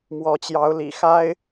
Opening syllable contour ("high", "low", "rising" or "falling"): rising